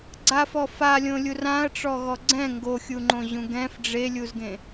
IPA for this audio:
ɡ͡ǀ a f ɔ f a lʲ õ lʲ u r ã ɐ̯ ʈ͡ʂ ɔ ɣ ɔ ɡ͡ǀ ɛ̃ ŋ ɡ o xʲ u ŋ͡ǃ õ ʑ ũ ɡ ɛ̃ f ɖ͡ʐ e lʲ u z ɡ ẽ

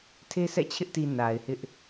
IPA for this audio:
tʰ e˦ sʰ ɛ̰˦˨ t͡ɕʰ ɪ˦ ʔ t i˨ n a˨ ɪ̯ h ɪ˦ ʔ

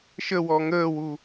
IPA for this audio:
ʃ ə w ɔ ŋ əː w u

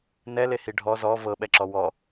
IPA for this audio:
n ɛ l e h i ɖʱ ɔ z ɔ v ɤ ɓ ɛ ǁ ɔ w ɔ

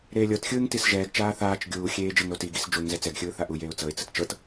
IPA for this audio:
ɾ eː lʲ ɤ t xʲ ɯː ŋ t i s ʒ ɛː ɡ t͡ʃ aː θ aː t͡ʃ ɡʲ uː xʲ eː d͡ʒ ɤ ŋ ɾ o t i ɡ i s d͡ʒ u ŋ z ɛ t͡s ɛ ɡ xʲ ɯː θ a ʔ u j eː ʊ̯ t͡s ɤ ɪ̯ t͡s ɯ t t͡ʃ ɤ t

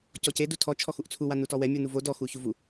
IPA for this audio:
c ɔ c e d u tʰ ɔ t͡ʃʰ ɔ x u ʔ t͡sʰ u w a n u t ɔ w ɛ mʲ u n u v o d ɔ x u ç u v u

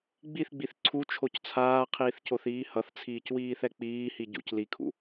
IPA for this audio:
ɡ͡b i θ ɡ͡b i θ ǀʰ u t͡ʃʰ o c t͡sʰ aː qʰ iː θ c o θ iː h ʌ θ t͡sʰ iː c w iː θ ɛ k͡p iː h i ɟ ṵ c l i kʰ ṵ

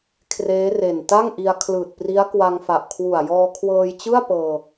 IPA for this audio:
kʰ r eː˦˥ r e˨˩ n t a˥˩ ŋ ʔ i˧ a̯ kʰ l ɯː˨˩ t̚ p r i˦˥ a̯ k w a˧ ŋ f a˨˩ ʔ kʰ w u˨˩ a̯ j ɔː˧ kʰ w ɤː˧ j t͡ɕ ɯ˥˩ a̯ p ɤː˧

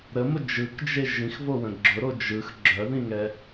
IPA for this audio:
ɾ ə m ʊ d͡ʒ ɯ k d͡ʒ e ʒ ĩ x v o w ə̃ ɡ͡ǁ ʊ ɾ o d͡ʒ ɯ x ɡ͡ǁ œ ð ĩ ŋ ɛ

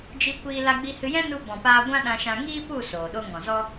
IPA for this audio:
d͡ʒ i˧ kʷ iː˧ l a˧ ɡ͡b i˧ h ɨ˧ j ɛ̃˦ n u˧ b ɔ̃˨ p aː˧ ɡʷ ã˦ ɗ ã˧ ʃ ã˧ ŋ iː˦ p u˦˨ s oː˨ ɗ o˦ ŋ ɔ̃˨ z ɔ˦

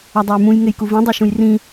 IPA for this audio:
a dˤ ɛ j m ũ j ŋ e j k u v ĩ dˤ e ʃ ũ j r ĩ

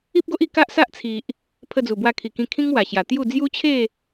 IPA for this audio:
i˦ p̚ ɡ o˦ ʔ i˥˧ k a˦ ʔ s a˦ ʔ t͡sʰ i˨ ʔ | pʰ ə˧ d͡z u˨˩ b w a˧ kʰ i˨˩ k ĩ˧ kʰ ĩ˦ ŋ w a˨˩ ɕ j a˨˩ t̪ j u˥˧ d͡z j u˦ t͡ɕʰ e˥˧

